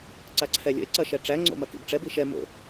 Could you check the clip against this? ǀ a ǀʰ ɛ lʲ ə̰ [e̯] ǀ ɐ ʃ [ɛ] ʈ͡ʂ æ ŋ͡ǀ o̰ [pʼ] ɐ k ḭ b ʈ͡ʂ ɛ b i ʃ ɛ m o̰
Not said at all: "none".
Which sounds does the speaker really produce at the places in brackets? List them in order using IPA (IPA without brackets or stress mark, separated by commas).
e̯, ɛ, m